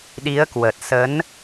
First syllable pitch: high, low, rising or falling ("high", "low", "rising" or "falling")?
rising